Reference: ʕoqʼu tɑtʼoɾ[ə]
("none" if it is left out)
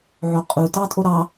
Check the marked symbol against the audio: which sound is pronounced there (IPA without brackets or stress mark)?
ɑ